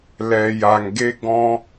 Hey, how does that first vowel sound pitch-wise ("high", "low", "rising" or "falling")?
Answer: low